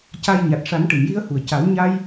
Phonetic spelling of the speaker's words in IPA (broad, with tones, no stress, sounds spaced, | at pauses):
c a˧ j ɲ a˨˩ t̚ ʂ a˨˩˦ n ʈ ɨ˨˩˨ m j i˧ ə̯ h u˨˩ ə̯ c a˨˩˦ w ɲ a˧ j